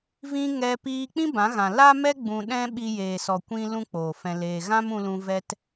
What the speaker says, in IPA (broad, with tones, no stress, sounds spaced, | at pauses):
v ĩ˧ ŋ ɛ˧ p iː˧ k͡p ĩ˦ b ã˨˦ ɣ ã˨ l a˦ m ɛ˦ ɡ͡b ũ˧ ɗ ɛ̃˦ ɓ i˧ j eː˨ s ɔ˨ kʷ ĩ˧ l ũ˦ k͡p oː˨ f ɛ̃˧ l eː˧ ɣ ã˦ m ũ˧ l ũ˧ v ɛ˦ t